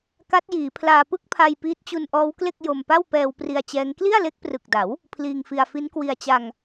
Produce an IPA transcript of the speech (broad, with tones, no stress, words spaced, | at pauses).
ka˦˥t̚jiː˩˦ pʰlaː˧ pɯ˥˩k̚pʰa˧j piː˦˥t̚t͡ɕu˧nʔɔː˦˥wkle˥˩k̚ jo˧mpa˥˩w pɛː˧wpri˧a̯t͡ɕɛː˦˥ŋ kli˥˩a̯le˦˥k̚prɯ˨˩k̚da˩˦w | pʰliː˧ŋfi˧a̯ fi˦˥nkwi˧a̯t͡ɕa˧ŋ